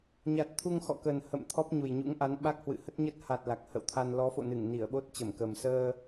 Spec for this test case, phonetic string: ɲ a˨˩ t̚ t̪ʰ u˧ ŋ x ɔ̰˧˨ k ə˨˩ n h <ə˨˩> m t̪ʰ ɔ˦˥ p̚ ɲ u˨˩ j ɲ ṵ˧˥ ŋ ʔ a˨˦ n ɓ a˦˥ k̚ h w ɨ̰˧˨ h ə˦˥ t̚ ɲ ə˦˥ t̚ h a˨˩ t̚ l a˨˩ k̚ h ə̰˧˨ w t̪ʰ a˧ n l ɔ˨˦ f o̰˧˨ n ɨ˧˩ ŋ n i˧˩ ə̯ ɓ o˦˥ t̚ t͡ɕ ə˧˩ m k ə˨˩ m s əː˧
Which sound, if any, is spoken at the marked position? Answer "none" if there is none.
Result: ə̰˧˨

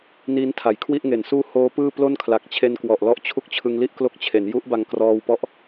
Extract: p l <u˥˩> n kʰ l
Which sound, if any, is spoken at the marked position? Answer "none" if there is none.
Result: o˥˩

